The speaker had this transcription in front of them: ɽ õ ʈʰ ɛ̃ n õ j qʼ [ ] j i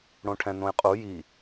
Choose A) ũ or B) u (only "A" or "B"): B